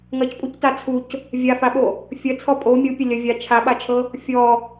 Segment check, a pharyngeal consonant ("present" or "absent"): absent